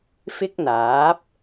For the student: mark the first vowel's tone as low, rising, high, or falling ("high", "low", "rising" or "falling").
high